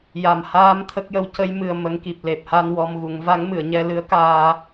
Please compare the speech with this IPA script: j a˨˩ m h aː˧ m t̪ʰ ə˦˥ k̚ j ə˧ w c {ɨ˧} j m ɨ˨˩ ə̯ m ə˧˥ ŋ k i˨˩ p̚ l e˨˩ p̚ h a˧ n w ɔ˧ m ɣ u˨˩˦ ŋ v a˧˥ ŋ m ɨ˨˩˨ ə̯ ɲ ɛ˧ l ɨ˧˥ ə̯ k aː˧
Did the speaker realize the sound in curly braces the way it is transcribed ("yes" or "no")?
no